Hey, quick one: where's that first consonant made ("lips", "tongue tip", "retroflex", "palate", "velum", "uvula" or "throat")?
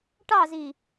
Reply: retroflex